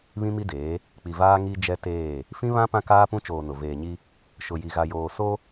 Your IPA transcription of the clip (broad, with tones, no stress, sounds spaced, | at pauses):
β ĩ˦ m i˦ d eː˨˦ | k͡p i˨ v aː˦ ŋ i˦ d͡ʒ ɛ˦ t eː˦˨ | f ĩ˦ β ã˦ p ã˦ k aː˦ p ũ˦ t͡ʃ oː˨ n ʊ˨ v eː˨ ɲ i˦ | ʃ ʊ˨ j i˨ ɣ a˨ j oː˨ s o˦